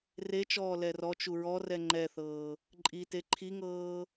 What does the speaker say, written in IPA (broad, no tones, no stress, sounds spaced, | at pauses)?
r e t͡ʃ ɔː l ɛ r ɔ t͡ʃ u ɹ ɔ r ɛ ŋ͡ǃ ɛ θ ɤː | ǃʼ i t e ǃʰ i ŋ ɤː